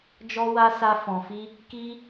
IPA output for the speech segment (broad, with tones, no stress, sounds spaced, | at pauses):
d͡ʒ ɔ˦ w a˦ s a˦ f ɔ̃˧ f i˦ | k i˦